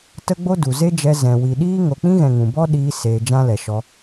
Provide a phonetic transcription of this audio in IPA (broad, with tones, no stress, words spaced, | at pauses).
tə˦ɡ͡bo˦du˨ ze˦d͡ʒɛ˧ zɛ̃˨ wi˨ɗiː˦ ŋo˨k͡pĩ˦ɣɛ̃˨ ŋũ˨ bɔ˦ ɗiː˧ seː˧d͡ʒã˦lɛ˨ ʃɔ˧